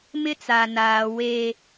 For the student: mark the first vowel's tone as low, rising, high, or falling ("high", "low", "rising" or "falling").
high